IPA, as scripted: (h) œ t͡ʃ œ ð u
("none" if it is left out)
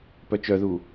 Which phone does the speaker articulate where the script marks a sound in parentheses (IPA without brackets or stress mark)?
p